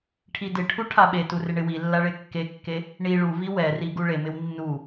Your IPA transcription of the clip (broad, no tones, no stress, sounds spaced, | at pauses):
ʈʰ i d ɪ ʈʰ u ʈʰ a ɓ e t u r ɪ ɳ ɪ w i lː a ɭ e kː e kː e | ɳ i ɭ u v i w ɛ r i ɡ u ɭ e m ɪ w nː u